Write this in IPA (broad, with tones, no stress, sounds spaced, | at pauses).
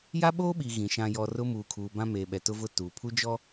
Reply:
j a˦ ɓ oː˦ ɓ i˨ ɣ ĩ˨ ʃ ã˨ j ɔ˨ r ʊ˦ m uː˨ kʰ uː˨ b ã˦ m eː˨ ɓ ɛ˨ t ʊ˦ v ʊ˦˨ t uː˨ pʰ u˦ d͡ʒ ɔ˦